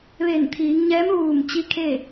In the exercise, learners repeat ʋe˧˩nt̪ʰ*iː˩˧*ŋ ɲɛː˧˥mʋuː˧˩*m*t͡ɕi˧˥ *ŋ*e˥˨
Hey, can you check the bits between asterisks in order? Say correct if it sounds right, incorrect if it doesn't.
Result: correct, correct, incorrect: kʰ

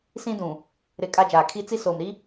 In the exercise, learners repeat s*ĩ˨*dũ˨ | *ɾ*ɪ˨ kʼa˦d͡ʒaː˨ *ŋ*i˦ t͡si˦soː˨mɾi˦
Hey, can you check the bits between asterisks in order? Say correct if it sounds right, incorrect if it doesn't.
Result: incorrect: ĩ˦, correct, incorrect: kʰ

